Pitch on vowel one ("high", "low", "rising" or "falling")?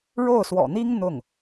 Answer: falling